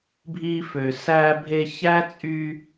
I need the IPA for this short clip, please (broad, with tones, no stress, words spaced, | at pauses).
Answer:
bʱi˧fø˨ sæ˧bʱe˧ çæ˦t͡sʼy˧